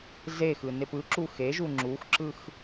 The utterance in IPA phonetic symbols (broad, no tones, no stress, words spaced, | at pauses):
zexɯ nepɯǁu xeʒu ŋ͡ǁuxǁɯx